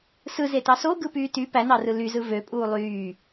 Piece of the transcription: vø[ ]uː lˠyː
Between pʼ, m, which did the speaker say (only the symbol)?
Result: pʼ